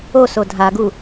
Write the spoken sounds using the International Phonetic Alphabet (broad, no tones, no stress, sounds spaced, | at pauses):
o s o dʱ a ɡ u